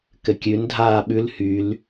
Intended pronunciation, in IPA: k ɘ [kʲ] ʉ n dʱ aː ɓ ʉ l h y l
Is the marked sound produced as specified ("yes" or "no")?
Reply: yes